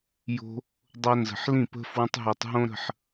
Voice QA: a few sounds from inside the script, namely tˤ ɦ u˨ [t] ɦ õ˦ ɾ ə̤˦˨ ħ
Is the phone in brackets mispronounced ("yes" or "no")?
yes